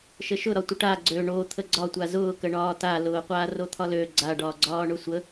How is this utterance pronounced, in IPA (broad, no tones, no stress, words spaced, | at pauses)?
ʃəʃʊ ɾɒtʷəʈa ɡ͡ǀø ɳo t̪ʰəɡ͡ǀɒtʷa zʊːkəɳɒː talʊːqʷaː rot̪ʰɒlø ɡ͡ǀaɖɒː ɡ͡ǀɒːɳʊsʷə